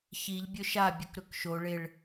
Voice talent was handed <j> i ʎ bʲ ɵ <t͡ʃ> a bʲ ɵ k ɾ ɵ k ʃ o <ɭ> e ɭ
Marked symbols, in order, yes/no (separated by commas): no, no, yes